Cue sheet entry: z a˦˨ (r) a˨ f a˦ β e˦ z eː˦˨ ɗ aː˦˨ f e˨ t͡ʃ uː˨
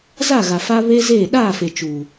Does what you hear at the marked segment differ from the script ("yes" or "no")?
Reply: yes